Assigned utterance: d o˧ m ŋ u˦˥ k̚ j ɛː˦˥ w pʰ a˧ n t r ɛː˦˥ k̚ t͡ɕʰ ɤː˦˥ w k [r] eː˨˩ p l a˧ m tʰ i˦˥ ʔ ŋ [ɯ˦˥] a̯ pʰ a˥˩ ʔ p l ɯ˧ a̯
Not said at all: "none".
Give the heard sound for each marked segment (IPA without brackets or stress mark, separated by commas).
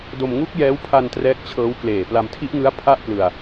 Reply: l, ɯ˦˥